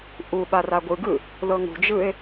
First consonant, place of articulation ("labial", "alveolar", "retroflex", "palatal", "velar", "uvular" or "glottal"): glottal